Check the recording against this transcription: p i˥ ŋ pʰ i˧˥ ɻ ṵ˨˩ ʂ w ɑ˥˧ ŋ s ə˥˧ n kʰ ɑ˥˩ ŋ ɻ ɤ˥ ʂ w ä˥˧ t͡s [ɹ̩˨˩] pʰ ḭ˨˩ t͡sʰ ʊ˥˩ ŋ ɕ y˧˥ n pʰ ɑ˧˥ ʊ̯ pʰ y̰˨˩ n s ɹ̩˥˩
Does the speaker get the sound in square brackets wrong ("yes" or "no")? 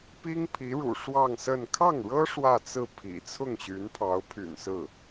yes